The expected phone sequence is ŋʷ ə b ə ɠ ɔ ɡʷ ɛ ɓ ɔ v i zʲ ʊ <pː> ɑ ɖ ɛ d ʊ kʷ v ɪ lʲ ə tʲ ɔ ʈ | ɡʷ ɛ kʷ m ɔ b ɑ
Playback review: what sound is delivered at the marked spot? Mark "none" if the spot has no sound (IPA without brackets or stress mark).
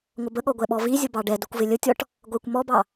b